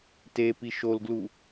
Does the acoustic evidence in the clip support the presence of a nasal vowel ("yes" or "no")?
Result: no